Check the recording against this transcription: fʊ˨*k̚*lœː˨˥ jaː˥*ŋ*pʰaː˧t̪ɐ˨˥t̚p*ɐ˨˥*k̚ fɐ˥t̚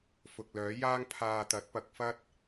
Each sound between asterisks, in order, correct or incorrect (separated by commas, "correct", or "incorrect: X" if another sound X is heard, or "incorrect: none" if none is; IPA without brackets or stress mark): correct, correct, correct